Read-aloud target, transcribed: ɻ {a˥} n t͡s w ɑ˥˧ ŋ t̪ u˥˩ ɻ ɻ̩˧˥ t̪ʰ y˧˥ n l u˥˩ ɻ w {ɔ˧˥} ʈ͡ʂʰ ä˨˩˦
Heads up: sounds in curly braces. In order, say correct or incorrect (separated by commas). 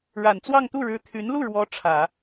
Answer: incorrect, correct